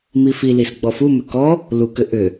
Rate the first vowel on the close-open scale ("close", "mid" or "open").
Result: close